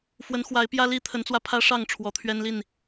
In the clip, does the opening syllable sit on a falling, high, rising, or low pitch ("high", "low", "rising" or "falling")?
rising